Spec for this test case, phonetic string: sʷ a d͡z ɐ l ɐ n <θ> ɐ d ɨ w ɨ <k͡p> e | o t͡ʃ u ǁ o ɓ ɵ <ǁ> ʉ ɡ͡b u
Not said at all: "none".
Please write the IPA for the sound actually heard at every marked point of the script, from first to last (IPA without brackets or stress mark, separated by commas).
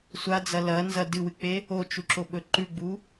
z, k͡p, ǃ